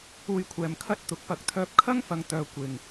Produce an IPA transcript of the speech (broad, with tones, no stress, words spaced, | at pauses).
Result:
uː˧jkʷʰɛː˨mkʰɐ˥t̚ t̪ʊ˨˥k̚pɐ˧k̚ t̪ʰœː˧p̚kʰɐ˥ŋfɐ˨˧ŋt̪œː˨ kʷɪ˨ŋ